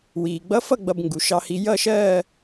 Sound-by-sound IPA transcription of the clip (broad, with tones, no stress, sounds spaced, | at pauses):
w iː˩ ɡ͡b ʌ˧˥ f ʌ˥˧ ɡ͡b ʌ˧ b ŋ ɡ u˩ ʃ ɑ˧ h i˧ j ʌ˥˧ ʃ ɜː˥˧